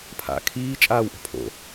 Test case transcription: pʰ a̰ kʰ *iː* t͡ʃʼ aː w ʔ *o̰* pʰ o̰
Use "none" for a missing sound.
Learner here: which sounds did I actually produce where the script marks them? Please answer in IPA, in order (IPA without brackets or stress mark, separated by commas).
iː, o̤